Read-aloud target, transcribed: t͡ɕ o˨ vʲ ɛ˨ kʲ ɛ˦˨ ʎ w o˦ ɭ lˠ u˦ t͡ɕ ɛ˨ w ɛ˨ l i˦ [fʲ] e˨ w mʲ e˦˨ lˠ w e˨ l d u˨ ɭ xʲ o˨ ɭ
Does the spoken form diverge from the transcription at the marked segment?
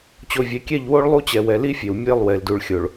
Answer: no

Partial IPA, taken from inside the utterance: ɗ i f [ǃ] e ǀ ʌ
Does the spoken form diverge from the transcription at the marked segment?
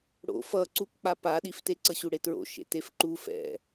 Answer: yes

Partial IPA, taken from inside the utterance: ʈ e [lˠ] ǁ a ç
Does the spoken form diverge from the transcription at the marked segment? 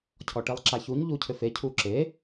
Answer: no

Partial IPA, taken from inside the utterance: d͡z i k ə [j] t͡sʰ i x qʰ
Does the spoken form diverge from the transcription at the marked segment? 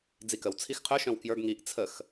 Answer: yes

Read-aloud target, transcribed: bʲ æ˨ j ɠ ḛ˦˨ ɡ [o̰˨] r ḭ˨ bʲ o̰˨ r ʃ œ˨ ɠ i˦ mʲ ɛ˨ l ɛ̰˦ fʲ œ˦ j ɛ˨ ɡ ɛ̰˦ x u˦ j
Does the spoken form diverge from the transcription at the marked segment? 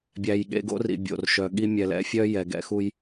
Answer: yes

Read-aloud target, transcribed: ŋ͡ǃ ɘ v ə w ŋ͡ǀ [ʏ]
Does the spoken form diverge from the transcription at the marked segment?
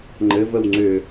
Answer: no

